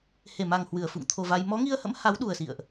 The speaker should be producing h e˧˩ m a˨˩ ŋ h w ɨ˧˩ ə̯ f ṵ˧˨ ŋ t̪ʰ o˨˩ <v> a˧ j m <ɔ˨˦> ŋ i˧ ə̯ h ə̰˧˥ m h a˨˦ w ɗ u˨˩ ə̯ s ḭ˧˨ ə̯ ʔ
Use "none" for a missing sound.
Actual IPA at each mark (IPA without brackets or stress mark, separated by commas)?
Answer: v, ɔ˨˦